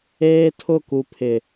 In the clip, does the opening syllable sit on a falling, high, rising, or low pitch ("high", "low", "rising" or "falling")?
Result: high